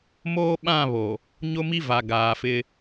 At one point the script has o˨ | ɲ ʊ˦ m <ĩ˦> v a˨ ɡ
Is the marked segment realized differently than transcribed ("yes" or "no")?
yes